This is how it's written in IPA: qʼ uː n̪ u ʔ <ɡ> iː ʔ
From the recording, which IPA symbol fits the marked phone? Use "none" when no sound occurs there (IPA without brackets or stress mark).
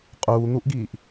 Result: ɡ